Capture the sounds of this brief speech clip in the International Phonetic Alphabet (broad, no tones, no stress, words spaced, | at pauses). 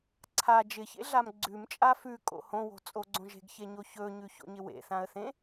ǀʰa d͡ʒɪçḛɮam ɡ͡ǀʉmt͡ʃʼa fʉkʼo̰ hõwo̤t͡sʼoɡ͡ǀõ ʒe̤ɡçeɲo çɵɲʉço̰ɲɪ wḛθãə̯θẽ